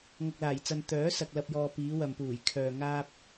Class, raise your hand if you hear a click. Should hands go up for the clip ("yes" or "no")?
no